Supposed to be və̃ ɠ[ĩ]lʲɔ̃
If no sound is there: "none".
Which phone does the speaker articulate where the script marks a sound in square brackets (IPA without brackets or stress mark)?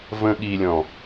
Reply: i